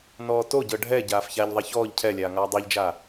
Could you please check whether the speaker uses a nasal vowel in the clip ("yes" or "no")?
no